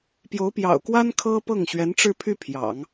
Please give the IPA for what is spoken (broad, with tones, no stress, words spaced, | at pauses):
pjo˧˥ʊ̯pjɑ̰˨˩ʊ̯kwa˥n kʰɤ˥pɤ˥˩ŋ ɕɥɛ˧˥nʈ͡ʂɻ̩˥˧pʰy˥˩ pʰjɑ̰˨˩˦ŋ